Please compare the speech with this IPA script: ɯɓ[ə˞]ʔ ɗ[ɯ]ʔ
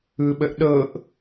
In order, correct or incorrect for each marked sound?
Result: incorrect: ə, incorrect: ɤ

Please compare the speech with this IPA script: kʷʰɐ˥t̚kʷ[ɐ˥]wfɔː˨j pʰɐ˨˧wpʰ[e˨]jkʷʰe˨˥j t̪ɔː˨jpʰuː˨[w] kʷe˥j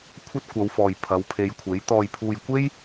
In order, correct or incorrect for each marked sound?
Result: incorrect: ɐ˨˧, incorrect: e˨˧, incorrect: j

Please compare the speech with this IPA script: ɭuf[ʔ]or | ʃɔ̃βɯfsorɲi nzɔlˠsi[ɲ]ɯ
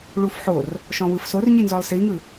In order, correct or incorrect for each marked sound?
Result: incorrect: ħ, incorrect: ŋ

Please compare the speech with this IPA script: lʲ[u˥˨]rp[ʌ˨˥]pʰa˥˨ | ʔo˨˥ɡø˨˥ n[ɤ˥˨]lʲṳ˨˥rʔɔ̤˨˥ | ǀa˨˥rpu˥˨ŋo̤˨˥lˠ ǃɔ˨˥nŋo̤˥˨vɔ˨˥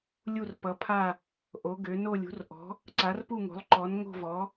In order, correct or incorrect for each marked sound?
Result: correct, correct, incorrect: o˥˨

